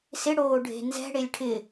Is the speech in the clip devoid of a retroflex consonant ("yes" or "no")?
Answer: no